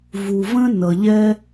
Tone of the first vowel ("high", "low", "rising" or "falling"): low